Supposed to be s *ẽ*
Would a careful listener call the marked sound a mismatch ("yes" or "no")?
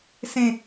no